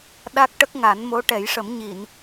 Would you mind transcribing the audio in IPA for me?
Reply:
ɗ a˦˥ k̚ ʈ ə˦˥ k̚ ŋ a˨˩˦ n m o˧˥ ʈ ɛ˨˩˦ j ʂ ə˨˩˦ m ɲ i˨˩˨ n

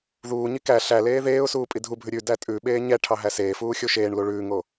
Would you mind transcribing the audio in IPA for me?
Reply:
ð uː ɲ i k æ ɬ æ l eː ð eː ʊ̯ s uː pʼ i dʱ u bʱ ʉ ɾʲ ʉ d æ tʼ ʉ ɓ eː ɲ ɛ ʈʰ ɑ ɦ æ s eː f uː xʲ o ʃ eː ɳ l u ɭ ʉː ŋ o

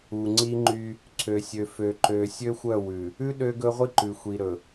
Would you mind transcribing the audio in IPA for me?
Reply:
u˨ ŋ͡ǀ i˦ ŋ͡ǃ y˦ | ǀʰ ø˨ sʲ ø˨ f ø˨ ǃ ø˨ sʲ ø˦ xʷ œ˦˨ w ʉ˨ | ʉ˦ ɗ ø˦ ɡ ɵ˦ ʁʷ i˦ ǃ ʉ˨ xʷ i˨ ɾ ɵ˨

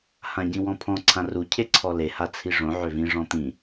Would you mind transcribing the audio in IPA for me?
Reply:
h ã ɟ ĩ w ɔ̃ pʰ ɔ̃ ǀʰ ã r u cʰ e ǀʰ ɔ l e h a t͡sʰ i ʐ õ ʕ ø v ĩ ʐ ɔ̃ t̪ ĩ

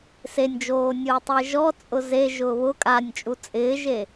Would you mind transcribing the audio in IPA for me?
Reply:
s e nʲ d͡ʒ oː nʲ ʊː tˤ o e̯ ʒ ɔ t͡sʼ ʊ z e ʒ ʊː β ʊ kʼ a nʲ t͡ʃʼ u t͡sʼ ɪː ʒ e

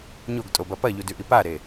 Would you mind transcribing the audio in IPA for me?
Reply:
ɲ o ɡ tʼ o b ɐ p ɐ ʎ u d ʉ ʔ i p a ɾ e

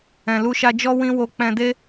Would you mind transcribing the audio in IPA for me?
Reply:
ɛ̃˨ l u˧ ʃ a˧ d͡ʒ ɔ˦ w ĩ˦ w o˧ k͡p ɛ̃˧ d e˦

